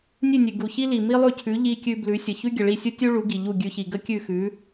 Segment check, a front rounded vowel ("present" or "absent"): absent